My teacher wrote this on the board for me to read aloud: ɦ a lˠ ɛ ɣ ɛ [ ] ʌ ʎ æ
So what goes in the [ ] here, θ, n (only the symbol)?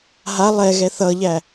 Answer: θ